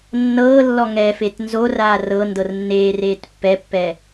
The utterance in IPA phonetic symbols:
nːɤːlːɔ ŋɛfet nzoraː rɤ ndɤrnːeːreːt pːɛpːɛ

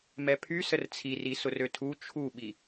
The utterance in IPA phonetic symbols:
mɛpʰy sərt͡sʰiri sʊrøtʰu t͡ʃʰuɓi

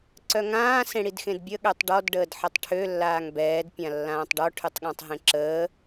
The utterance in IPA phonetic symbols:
ǀœŋãː sẽɽidxẽdbʲə ɠøtˤɖɔd ɖəːdħətˤʈʰø lːaːŋbɛːd pʲãlːãːtˤɖɔ ʈʰytˤɠãtˤɦẽǁəː

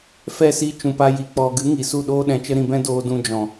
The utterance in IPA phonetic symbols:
fɛ˦˨si˧ t͡ʃũ˨pa˧ ji˨k͡pɔ˨ ɡɨ˨˦ŋi˨ su˦˨ɗoː˦ɗɛ̃˧t͡ʃə˦ ɾĩ˧bɛ̃˦ doː˧ dũ˧ d͡ʒɔ̃˨

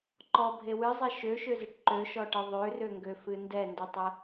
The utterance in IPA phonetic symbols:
ǃɔbʱe wɨzˤe ʃøʃøzɨʈ ǃøʃɔʈɨ ðˤørøŋɡøfɨ ndɛndɨtˤɛ

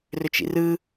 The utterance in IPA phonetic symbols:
røt͡ʃḭrɯ

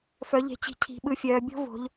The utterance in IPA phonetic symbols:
fœ˩˧ʎe̤˩˧t͡ɕi̤˩˧ cʰi̤˩˧ɓɯ˩˧fʲœː˩˧ bʲo̤˦vo̤˩˧ʎ

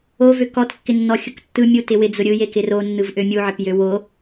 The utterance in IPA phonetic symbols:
ovø kɔtkːɪnːɔxʲʊk tːɯmʲutɪ wɪd͡zʊ ɾʲɯjekɪ ronːɯvʔø mʲuʕɪpjø wo

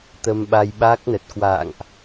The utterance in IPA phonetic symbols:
t̪ə˧mɓa˧jɓaː˦˥k̚nə˨˩t̚ kwa̰ː˧˨ŋʔ

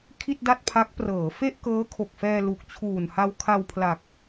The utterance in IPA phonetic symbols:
kʰi˥˩t̚da˥˩t̚pʰa˦˥k̚ prɤː˩˦ fe˥˩ʔkɤː˦˥kʰo˨˩k̚fɛː˧ lu˨˩k̚t͡ɕʰuː˨˩n ha˧wkʰa˧wpʰla˨˩k̚

